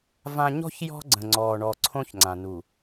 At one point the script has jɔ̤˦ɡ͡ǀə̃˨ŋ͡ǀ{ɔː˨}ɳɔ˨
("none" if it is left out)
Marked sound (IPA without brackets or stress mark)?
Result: ɔː˨